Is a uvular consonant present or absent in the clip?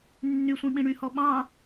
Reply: absent